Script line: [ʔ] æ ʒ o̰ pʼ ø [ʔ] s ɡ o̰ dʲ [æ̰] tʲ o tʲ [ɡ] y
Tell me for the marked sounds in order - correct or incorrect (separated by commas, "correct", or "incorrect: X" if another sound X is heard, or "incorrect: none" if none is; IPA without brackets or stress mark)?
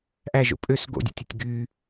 correct, incorrect: none, correct, correct